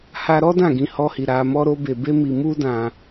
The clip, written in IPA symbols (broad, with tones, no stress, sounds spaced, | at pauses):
h a˧ ɾ ɔ˦ d ã˦˨ ɡ ĩ˧ h ɔ˧ h i˨ ɾ a˧ m ɔ˦ ɾ o˦ b e˧ b e˦ m i˧ m u˦ d ã˧